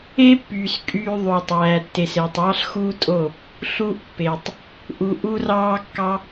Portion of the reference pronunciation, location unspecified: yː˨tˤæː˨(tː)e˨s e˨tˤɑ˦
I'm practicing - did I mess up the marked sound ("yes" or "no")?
no